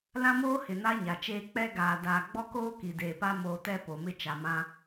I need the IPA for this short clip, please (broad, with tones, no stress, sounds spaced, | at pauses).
l ã˦ m oː˦ h ɪ˨ n a˦ ɲ a˨ t͡ʃ eː˦ k͡p ɛ˦ ɡ aː˨ d aː˨ ɡ͡b ɔ˦ k oː˦ k i˨ d eː˨ p a˦ m oː˨ t ɛ˦˨ p o˨ m ɪ˦ t͡ʃ a˨ m ã˦